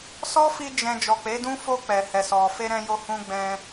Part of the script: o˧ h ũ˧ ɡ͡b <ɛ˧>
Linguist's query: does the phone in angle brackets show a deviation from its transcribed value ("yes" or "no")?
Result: yes